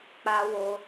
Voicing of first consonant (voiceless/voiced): voiceless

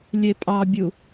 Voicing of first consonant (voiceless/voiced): voiced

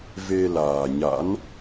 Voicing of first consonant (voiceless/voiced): voiced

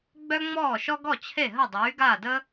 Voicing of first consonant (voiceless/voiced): voiced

